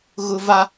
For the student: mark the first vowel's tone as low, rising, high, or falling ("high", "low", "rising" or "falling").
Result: high